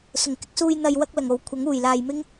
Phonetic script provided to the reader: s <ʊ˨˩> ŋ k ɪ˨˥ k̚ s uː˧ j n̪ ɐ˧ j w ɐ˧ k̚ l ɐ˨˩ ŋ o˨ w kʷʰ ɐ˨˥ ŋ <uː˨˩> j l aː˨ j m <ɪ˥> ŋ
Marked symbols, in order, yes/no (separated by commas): yes, yes, yes